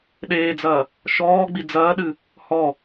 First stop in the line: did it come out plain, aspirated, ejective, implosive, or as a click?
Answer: implosive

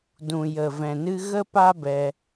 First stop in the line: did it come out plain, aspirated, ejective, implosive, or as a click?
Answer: plain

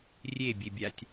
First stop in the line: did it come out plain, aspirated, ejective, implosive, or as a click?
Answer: plain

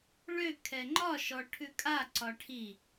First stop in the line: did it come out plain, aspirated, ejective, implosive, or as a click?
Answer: aspirated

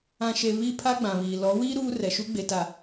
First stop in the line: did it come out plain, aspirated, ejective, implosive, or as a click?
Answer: aspirated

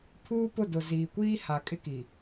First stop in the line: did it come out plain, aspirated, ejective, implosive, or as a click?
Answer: aspirated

